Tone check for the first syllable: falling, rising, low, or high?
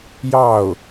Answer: falling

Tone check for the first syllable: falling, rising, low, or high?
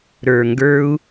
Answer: low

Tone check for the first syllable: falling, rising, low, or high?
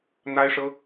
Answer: high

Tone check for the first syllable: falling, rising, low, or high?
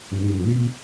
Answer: low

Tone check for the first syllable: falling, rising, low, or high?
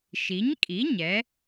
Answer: rising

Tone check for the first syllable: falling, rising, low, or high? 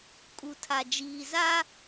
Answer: low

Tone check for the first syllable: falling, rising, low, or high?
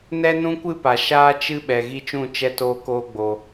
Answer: high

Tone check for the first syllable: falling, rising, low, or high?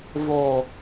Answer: low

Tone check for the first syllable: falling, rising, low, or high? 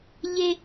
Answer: high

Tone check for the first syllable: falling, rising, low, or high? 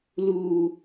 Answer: low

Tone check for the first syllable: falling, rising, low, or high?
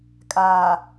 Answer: low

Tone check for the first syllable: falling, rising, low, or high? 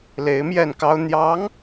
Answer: rising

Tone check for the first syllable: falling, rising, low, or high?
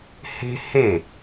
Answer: high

